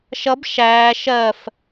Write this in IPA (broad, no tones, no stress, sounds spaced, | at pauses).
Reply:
ʃ ʌ b ʃ æː ʃ ɜ f